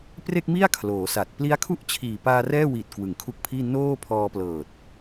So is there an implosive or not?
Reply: no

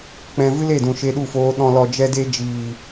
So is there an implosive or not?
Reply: yes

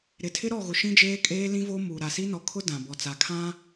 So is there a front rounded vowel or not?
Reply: no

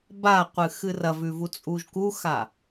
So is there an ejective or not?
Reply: yes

